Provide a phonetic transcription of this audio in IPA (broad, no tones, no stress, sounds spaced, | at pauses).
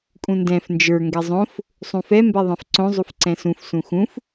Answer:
kʼ ũ n d ɛ̃ f n d͡ʒ ə˞ ŋ ɡ ɛ zˤ õ f | sˤ ũ f ɛ m b ɛ ðˤ ɛ̃ f ǀ õ zˤ u f ǀ ɛ̃ s ũ f s ũ x ũ f